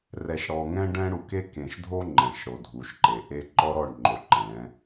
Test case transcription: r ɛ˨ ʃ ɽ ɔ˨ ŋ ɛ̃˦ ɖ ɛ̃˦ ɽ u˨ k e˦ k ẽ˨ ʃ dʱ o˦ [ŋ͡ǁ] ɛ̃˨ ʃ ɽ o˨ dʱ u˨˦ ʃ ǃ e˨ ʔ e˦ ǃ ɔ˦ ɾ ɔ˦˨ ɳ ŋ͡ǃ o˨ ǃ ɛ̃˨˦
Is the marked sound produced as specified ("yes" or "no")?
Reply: no